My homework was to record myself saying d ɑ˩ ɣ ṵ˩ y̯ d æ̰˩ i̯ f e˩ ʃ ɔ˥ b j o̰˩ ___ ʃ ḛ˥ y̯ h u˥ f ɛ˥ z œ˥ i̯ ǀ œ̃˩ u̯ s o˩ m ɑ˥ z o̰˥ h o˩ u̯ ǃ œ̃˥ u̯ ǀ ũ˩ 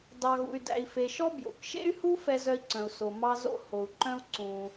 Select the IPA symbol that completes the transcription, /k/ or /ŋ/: k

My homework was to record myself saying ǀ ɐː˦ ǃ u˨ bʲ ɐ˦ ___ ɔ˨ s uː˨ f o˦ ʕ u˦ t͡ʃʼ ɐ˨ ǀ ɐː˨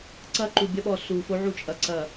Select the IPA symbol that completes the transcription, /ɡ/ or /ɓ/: ɓ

